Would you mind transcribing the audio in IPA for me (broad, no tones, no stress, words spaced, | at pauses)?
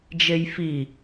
d͡ʒejfi